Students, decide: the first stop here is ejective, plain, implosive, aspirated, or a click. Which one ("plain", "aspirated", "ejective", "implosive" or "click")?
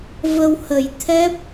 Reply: aspirated